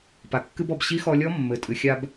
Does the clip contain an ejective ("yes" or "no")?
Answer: yes